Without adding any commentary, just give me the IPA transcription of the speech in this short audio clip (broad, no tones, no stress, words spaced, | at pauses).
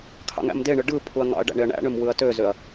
kʰɑ̰ŋæ̰mdeɳɯ ɖɯ pʰuɐ̯ŋɑ̰ɐ̯ɖæ̰ ɳeɐ̯ɳæ̰ɳøm wɯɐ̯tøzøɐ̯